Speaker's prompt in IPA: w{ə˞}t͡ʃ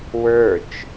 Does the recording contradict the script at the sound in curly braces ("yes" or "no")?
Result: no